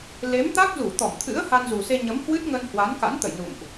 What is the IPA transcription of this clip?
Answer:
l e˨˦ m t̪ a˦˥ k̚ z u˧˩ t̪ ɔ˧˩ m t̪ʰ ɨ̰˧˥ ə̯ h a˧ n z u˨˩ s e˧ ɲ ə˨˦ m h w ɨ˦˥ t̚ ŋ ə˧ n h w a˨˦ n k a̰˧˥ n t̪ ə̰˧˨ j n ṵ˧˨ m ʔ

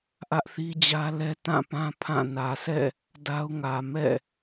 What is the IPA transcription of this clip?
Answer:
ʔ ä˦ ʔ θ i˦ d͡ʑ ä˦ l ɛ˦ t ã˦˨ p ã˦ pʰ ã˦˨ n ä˨ sʰ ɛ̰˦˨ | d a˦ ʊ̯ ŋ ä˨ m ɛ̰˦˨

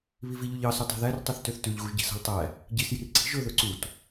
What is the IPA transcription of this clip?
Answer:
β i v i ʎ ʉ ʎ ɑ s ʉ tˤ i̤ ð æ r tˤ ʉ θ t ø θ t ʉ ʎ ɣ u ʒ ɟ i̤ s ɑ̤ ʎ tˤ æ | ɟ i s j i̤ r ǀ i̤ ʒ ɵ ð ɵ ǀ u t

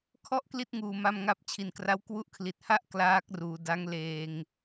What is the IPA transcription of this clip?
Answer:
kʰ ɔ˥˩ ʔ k l i˥˩ t̚ ŋ uː˨˩ m a˧ m ŋ a˦˥ p̚ t͡ɕʰ i˨˩ n k r a˦˥ w k w u˦˥ ʔ kʰ l i˨˩ t̚ h a˥˩ ʔ k l aː˦˥ k̚ r uː˩˦ d a˦˥ ŋ l eː˧ ŋ

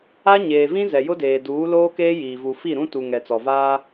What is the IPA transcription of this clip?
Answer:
a˦ ɲ eː˨ v ĩ˦ z ɛ˨ j ʊ˦ d eː˨ d uː˨˦ l oː˦ k eː˦ j iː˨ v u˨ f i˦˨ ɾ ũ˦ t u˨ ŋ ɛ˨ t͡s ɔ˨ v aː˦

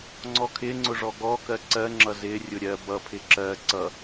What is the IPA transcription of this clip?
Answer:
ŋ͡ǀ ɔ kʰ ɪ ŋ͡ǀ ʊ ʐ ɔ ɡ ɔ k ɜ ǀ ɜ ŋ͡ǁ ʌ z ɪ rʲ ʊ ɾʲ ɜ b ʌ pʰ ɪ ǁ ɜ ǀ ʌ

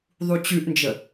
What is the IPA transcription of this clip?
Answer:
ðˤ u t͡ɕ ʉ ʔ n d͡ʒ ə

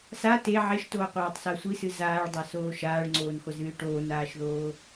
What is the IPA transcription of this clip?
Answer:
s a t e ʕ e ʃ t oː qʷ aː tˤ s a sʷ i s ɨ z aː ɭ dˤ a s oː ʃ aː ɭ ŋ͡ǀ oː n χʷ ɛ z ɨː ʈ oː n aː ʃ ð oː

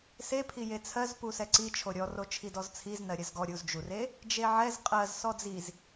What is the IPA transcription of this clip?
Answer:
s e pʰ i j e t͡sʰ ɜ z p u s ɛ ǀ i t͡ʃʰ o ɾʲ ɔ r o t͡ʃʰ i d ɔ z t͡sʰ i z n ɜ ɾʲ ɜ z ɡ ɔ ɾʲ u z d͡ʒ u r e | d͡ʒ e ʕ ɛ z qʼ ɜ z s ɔ d͡z i z

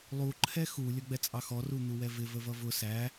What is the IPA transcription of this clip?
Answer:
lˠ u ǃʰ ɛ x u lʲ ʌ ɡ͡b ɛ t͡sʼ ɑ x ɔ r u n̪ u w ɛ v ɪ v ə v ʌ v ʊ s æ

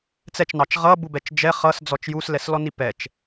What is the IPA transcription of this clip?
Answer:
t͡s ɛ t͡ʃ n ɑ t͡ʃ ʁ ʌ b u b ɛ t͡ʃ d͡ʒ ɛ χ ʌ s d͡z ɔ t͡ʃ j u s l ɛ s l ɔ n i p ɛ t͡ʃ

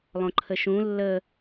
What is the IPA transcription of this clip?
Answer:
lˠ õ ǃʰ ə ʃ ũ lː ə

